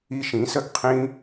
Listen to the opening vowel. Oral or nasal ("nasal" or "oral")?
oral